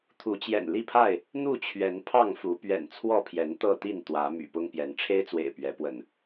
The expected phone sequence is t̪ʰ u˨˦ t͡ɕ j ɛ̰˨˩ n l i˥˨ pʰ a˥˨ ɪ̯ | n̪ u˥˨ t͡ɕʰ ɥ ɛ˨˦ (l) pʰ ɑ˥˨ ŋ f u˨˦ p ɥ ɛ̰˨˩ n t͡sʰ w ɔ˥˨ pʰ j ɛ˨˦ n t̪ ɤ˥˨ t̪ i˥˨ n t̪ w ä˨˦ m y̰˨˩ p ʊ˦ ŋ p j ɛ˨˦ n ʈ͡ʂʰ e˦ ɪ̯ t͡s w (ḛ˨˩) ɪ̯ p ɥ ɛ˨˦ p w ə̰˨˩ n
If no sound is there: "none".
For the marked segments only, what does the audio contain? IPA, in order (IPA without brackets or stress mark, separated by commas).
n, ḛ˨˩